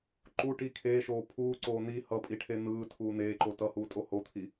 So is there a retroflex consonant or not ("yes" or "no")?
yes